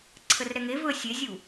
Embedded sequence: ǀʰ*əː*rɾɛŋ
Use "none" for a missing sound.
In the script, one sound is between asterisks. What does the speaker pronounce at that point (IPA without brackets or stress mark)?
ə